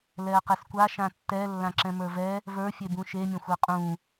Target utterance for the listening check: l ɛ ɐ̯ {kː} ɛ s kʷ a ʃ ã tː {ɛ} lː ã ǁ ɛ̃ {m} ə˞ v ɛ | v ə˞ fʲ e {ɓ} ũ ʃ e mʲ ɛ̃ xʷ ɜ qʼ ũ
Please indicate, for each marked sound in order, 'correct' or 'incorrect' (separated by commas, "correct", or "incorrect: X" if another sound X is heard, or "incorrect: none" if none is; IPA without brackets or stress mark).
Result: incorrect: q, correct, correct, incorrect: b